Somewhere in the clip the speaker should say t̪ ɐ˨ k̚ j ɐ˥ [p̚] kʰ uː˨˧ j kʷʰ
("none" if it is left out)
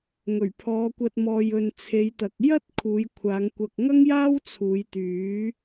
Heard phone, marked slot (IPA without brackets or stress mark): t̚